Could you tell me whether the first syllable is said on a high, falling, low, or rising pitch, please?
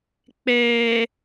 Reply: low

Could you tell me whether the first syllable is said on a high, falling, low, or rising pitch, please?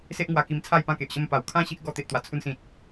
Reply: high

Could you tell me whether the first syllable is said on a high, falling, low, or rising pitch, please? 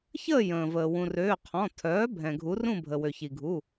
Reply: falling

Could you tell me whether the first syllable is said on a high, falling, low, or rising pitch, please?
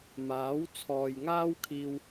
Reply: rising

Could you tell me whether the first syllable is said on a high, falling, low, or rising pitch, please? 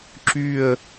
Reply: falling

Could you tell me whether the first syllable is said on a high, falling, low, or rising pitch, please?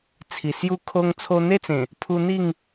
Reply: low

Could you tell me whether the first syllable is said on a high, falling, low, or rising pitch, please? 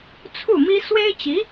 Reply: falling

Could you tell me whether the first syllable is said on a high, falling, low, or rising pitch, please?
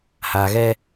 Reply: low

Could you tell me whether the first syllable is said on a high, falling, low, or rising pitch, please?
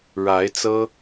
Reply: rising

